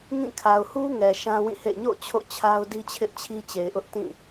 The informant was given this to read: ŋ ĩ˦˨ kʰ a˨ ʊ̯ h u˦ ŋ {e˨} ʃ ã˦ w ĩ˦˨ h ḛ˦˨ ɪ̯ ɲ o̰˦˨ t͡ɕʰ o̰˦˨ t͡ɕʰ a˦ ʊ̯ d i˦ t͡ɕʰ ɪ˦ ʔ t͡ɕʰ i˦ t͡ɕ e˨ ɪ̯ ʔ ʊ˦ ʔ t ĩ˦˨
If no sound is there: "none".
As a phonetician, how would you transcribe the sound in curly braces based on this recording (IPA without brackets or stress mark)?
ɛ˨